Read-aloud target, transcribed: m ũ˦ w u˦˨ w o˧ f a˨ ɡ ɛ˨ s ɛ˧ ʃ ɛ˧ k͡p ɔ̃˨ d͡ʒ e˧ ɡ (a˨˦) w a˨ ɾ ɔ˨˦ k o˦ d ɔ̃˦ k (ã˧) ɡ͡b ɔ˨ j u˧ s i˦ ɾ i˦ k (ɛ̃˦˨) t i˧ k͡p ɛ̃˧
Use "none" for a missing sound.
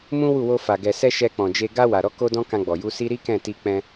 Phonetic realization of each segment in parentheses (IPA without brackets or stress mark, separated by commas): a˧, ã˧, ɛ̃˦˨